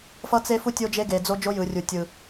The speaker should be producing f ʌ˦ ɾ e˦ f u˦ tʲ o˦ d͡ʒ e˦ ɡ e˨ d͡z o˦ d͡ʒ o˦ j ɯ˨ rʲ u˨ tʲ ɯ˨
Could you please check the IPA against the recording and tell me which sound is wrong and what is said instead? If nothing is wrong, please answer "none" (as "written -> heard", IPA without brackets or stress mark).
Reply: ɾ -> t͡s